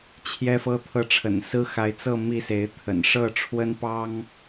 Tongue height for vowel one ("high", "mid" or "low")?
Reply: mid